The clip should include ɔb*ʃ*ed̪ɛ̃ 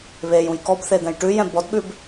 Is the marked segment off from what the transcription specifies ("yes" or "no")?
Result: yes